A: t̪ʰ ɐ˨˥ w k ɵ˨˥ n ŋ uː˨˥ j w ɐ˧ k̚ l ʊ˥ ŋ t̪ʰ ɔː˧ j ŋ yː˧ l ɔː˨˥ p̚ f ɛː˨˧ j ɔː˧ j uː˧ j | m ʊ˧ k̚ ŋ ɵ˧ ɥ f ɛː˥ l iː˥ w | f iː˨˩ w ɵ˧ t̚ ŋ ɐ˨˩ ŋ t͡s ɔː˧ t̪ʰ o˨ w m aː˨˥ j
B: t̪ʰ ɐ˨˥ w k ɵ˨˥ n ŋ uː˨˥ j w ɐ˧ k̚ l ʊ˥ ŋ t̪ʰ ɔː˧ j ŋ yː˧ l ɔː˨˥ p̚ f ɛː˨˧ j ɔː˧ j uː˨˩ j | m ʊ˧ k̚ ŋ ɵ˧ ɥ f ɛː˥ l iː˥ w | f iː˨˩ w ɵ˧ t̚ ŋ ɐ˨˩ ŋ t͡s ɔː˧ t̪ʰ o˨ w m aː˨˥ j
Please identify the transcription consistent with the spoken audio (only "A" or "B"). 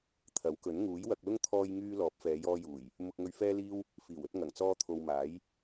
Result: B